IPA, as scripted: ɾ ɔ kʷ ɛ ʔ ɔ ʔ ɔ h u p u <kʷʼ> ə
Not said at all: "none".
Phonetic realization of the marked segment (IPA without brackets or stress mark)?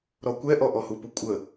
kʷʼ